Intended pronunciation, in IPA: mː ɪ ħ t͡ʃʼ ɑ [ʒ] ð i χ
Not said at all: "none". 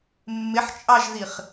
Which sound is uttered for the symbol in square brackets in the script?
ʒ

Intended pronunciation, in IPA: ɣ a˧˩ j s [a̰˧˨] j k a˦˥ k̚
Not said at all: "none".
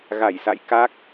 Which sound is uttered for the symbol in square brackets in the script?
a̰˧˨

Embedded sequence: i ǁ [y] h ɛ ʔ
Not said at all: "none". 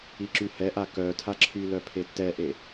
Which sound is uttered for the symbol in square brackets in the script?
y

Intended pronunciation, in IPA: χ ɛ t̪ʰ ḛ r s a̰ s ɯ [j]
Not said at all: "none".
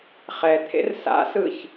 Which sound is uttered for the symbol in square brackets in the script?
ç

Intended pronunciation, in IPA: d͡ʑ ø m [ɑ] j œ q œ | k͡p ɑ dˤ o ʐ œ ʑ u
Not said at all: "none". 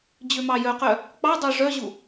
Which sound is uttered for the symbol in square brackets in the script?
ɑ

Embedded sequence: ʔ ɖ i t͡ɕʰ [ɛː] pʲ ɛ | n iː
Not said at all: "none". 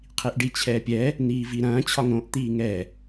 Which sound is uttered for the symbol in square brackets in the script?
ɛː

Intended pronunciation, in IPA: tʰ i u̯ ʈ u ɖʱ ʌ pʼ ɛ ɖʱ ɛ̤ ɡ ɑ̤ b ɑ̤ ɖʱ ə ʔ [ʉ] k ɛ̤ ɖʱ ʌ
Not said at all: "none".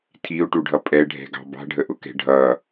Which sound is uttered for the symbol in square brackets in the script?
ʊ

